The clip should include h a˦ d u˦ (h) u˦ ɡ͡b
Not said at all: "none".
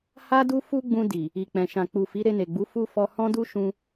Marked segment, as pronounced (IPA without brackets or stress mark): f